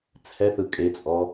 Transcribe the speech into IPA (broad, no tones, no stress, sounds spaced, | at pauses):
t͡sʰ ɛ θ ɯ kʼ e t͡sʼ ɔ